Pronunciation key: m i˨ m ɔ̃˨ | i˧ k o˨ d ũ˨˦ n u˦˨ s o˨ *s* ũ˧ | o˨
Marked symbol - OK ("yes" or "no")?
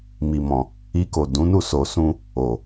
yes